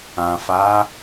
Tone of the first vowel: low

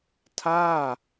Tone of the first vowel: falling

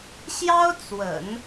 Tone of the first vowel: high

